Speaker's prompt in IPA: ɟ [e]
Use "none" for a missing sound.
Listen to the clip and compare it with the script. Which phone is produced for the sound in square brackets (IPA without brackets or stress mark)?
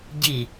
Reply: i